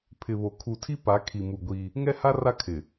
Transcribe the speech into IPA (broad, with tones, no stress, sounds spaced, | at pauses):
pʰ ɪ˨ β o˨ kʰ u˨ tʰ i˦ p a˨˦ kʰ i˨ m u˨ ɡʷ iː˦ | ŋ ɛ˦ h a˦ r a˦ kʰ ɪ˨